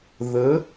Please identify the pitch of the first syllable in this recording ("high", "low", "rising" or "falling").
rising